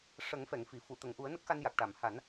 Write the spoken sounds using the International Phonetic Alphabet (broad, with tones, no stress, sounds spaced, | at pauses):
ʂ ə˨˩˦ ŋ f ɛ˨˩˨ ŋ f i˨˩˨ f u˨˩˨ t̪ ə˨˩˨ ŋ ʔ u˨˩˦ ə̯ n ə˦˥ k̚ x a˧ n j a˨˩ k̚ ʈ a˨˩˨ m h a˨˩˦ n